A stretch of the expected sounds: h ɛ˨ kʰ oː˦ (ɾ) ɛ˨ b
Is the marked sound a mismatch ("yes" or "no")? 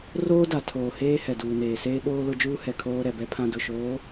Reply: no